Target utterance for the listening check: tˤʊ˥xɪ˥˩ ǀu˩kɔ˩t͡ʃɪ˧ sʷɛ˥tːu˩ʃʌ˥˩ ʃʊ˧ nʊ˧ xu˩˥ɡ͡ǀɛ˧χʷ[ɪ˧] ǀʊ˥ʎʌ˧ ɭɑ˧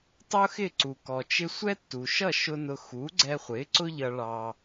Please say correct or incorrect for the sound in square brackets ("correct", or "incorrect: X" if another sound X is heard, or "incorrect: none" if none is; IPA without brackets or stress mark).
incorrect: ɪ˩˥